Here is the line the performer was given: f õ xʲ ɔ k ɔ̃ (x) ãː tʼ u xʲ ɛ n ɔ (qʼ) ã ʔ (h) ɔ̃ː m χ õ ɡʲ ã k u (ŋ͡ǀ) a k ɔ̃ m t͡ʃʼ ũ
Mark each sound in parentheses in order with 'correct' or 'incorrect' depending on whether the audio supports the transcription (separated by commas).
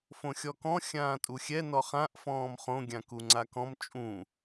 incorrect, incorrect, incorrect, correct